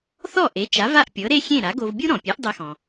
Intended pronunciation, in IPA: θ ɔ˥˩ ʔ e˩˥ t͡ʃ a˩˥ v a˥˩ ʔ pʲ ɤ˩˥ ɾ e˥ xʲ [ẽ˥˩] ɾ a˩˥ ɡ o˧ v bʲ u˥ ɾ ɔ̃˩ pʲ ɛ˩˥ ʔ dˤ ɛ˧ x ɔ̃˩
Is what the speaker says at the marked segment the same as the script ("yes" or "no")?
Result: yes